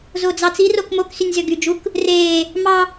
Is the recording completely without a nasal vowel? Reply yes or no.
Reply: yes